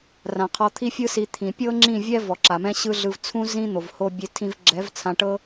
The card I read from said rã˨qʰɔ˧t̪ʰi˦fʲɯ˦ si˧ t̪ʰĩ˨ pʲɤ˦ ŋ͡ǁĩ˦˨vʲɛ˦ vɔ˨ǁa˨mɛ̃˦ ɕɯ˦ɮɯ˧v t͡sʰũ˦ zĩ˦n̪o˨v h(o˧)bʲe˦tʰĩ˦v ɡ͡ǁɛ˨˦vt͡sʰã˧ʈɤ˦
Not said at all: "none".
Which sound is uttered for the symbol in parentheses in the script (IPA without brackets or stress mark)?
o˦